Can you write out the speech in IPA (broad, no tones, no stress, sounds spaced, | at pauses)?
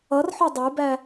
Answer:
ʌ r ħ ɔ dˤ ə˞ b æ